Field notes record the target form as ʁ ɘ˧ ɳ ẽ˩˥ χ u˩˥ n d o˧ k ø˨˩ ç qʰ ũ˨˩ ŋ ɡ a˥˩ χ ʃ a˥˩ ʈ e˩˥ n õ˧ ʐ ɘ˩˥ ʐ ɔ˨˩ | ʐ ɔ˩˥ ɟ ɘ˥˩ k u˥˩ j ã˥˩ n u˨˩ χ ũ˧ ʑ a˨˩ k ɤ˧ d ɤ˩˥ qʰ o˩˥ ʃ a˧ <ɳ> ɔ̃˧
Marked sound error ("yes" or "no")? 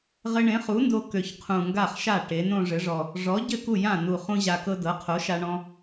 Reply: no